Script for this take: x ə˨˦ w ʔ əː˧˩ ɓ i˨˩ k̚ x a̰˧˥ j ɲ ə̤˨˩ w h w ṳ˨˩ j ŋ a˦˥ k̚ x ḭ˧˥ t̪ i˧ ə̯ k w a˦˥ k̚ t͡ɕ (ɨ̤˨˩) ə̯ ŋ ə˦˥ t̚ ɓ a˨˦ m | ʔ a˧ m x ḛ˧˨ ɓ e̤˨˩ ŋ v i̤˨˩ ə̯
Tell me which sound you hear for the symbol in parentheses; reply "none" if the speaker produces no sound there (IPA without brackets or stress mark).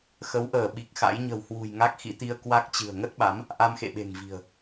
ɨ̤˨˩